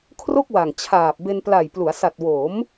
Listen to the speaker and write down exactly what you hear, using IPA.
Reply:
kʰro˥˩k̚wa˨˩ŋt͡ɕʰaː˨˩p̚ be˧npla˨˩jplu˩˦a̯ sa˨˩t̚wo˩˦m

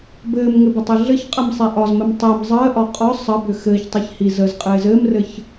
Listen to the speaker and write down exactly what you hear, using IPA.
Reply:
bɘːmŋɘbʏtˤi ɮɘçqʼɘmsˤe ʔɒzmɘm tˤɪːm zˤəːʔɒ qʼɒ sˤəbʏ xɘːçtˤiç hi zəzqʼɪː zɘːmrɘç

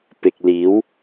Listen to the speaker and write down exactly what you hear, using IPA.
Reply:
pɪ˨k̚liː˨˥w

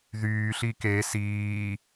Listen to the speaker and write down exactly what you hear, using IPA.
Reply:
ðyːɬi ke siː

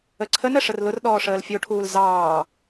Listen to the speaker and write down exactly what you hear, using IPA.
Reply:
əǀʰənə ʂərlʊrɗɔː ʂəːlfʲoʈʰuːl zɑː

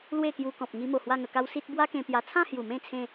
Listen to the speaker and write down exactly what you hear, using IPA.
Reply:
lwe˥˧kju˧kɔ̃˨p̚ ŋi˧mo˨˩ hwa˥˧ŋə˧ka˦w si˦t̚ bwa˦kẽ˧pja˧ t͡sʰã˥˧hju˨˩mẽ˥˧t͡sʰẽ˧

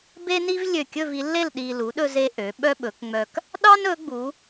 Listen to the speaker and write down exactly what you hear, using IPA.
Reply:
be˥ni˥vlʲø˧˩ kʲɵ˥˧vi˩˧lːe˥˧l ɗi˧ lu˩˧ɗɵ˧ze˧ ʔø˩˧ ɓœ˥ɓɵ˩˧k ŋ͡mœ˧k | ɗɑ˥nɵ˩˧ɡ͡bu˩˧

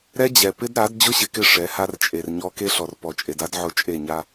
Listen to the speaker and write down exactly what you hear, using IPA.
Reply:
ɾɛ˦d͡ʑɛ˨ pɪ˦d ɾa˨˦d d͡ʑʊ˦ɕɪ˨kɪ˦˨ ʂɛ˨˦ha˦r t͡ʃʼe˨rɲɔ˦ ke˦ɬɔ˨r pɔ˨t͡ʃʼe˨da˦d ʕʊ˦˨t͡ʃʼe˦˨ɲa˦

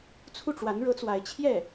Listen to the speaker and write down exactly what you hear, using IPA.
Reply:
t͡sʰu˥˩ʈ͡ʂwa˧˥nɻɤ˧˥t͡swa˧˥ɪ̯ t͡ɕʰjɛ˥˩

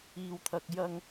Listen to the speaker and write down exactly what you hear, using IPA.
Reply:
iː˧wt̪ʰɐ˧k̚ jɐ˥ŋ

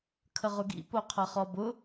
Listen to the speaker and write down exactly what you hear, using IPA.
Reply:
kʰəʁʊɡḭ poqʰɐχɔbʊ

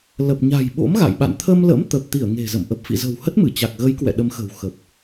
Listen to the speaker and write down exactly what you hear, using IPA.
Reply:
lə˨˩p̚ɲa̤˨˩j ɓo̰˧˥mɣa̰˧˨jɓa̰˧˨n t̪ʰə˧mlə̰˧˥mt̪ə˨˩p̚ t̪i˧˩ə̯ŋe̤˨˩zə̰˧˨m ʔə˨˩p̚fḭ˧˨zə̤˨˩w hə˦˥t̚mɨ˧˩t͡ɕa˨˩k̚ɣə˨˦j kwɛ̰˧˨ ɗə˨˦mxə̤˨˩wxə˨˩p̚

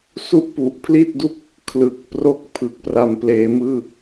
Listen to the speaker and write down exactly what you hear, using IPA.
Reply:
su˥˩ʔpu˨˩ʔpʰli˥˩t̚du˥˩k̚ | kʰlɯ˨˩k̚ pro˥˩k̚ pʰɯ˨˩k̚pra˨˩mpleː˩˦ mɯː˥˩

